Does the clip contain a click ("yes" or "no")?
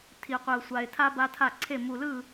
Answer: yes